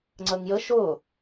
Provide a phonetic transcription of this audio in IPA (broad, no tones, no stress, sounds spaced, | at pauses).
ŋ͡ǀ əː ŋ j ə ʃ ʊː